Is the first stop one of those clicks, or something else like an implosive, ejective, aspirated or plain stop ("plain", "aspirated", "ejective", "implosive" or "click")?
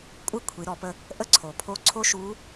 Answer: ejective